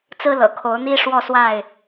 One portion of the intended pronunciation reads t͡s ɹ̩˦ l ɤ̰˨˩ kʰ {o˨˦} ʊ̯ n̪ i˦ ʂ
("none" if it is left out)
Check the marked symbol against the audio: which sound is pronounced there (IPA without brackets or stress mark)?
o˨˦